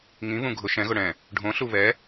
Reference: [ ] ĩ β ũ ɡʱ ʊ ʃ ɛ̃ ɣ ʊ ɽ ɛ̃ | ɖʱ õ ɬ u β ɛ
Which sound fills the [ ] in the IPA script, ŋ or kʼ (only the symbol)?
ŋ